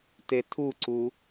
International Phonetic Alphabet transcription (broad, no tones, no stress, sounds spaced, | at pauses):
t e tʰ u ǀ u